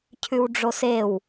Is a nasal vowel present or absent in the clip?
absent